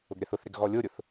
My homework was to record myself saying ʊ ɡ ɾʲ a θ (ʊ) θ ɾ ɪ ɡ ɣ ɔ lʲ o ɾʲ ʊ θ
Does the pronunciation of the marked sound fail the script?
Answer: no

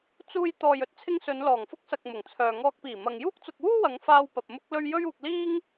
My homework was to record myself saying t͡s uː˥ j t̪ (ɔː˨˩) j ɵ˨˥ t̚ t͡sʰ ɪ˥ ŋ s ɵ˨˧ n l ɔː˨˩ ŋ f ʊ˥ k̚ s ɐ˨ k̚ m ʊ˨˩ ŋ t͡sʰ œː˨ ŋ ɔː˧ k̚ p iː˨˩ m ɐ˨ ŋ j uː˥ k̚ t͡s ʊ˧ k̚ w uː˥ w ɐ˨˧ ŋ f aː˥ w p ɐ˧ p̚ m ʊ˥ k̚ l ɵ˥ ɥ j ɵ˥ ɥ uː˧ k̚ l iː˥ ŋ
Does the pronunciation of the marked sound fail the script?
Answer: yes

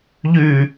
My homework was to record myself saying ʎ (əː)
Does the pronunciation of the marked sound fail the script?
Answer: yes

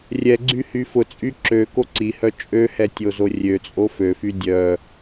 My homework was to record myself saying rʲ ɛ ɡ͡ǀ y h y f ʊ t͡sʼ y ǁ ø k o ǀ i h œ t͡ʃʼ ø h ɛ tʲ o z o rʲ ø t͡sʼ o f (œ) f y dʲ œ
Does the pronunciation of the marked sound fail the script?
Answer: yes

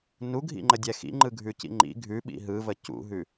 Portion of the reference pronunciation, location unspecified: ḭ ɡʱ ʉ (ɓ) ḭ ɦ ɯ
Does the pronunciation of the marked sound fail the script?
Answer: no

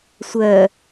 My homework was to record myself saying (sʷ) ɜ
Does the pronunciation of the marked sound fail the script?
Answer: no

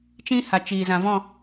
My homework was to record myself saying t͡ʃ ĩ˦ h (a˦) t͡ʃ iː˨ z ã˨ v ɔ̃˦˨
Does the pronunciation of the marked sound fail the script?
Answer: yes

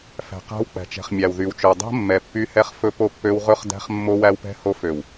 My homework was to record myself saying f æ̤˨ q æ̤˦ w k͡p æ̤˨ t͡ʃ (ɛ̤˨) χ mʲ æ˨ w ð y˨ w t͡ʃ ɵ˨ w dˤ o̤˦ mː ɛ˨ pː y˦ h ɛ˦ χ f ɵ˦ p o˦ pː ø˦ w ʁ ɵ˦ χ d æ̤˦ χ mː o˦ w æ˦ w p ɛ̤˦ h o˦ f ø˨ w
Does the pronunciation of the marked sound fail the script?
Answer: no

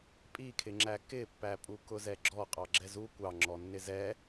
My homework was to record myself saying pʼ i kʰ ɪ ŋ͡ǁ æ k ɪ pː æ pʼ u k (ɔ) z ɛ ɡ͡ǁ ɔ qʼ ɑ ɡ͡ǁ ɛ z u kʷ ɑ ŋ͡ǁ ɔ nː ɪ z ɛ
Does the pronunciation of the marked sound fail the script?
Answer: yes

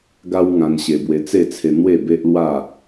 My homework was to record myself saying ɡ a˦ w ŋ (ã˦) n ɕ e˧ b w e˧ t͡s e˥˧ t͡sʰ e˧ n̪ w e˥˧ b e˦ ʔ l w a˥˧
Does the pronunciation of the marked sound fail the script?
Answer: yes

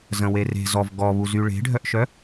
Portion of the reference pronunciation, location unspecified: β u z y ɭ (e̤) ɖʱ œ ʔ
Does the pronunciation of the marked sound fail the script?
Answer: no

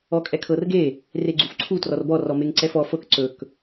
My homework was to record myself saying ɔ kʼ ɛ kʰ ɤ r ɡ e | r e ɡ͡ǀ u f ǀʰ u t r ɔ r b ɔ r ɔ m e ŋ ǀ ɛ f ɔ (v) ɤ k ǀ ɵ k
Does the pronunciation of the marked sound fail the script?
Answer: yes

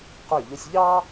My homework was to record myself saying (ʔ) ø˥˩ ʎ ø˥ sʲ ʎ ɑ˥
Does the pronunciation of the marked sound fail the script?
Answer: yes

